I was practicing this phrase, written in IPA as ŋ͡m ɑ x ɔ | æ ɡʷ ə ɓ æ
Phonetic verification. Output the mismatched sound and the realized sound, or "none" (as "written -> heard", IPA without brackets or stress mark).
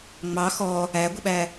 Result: none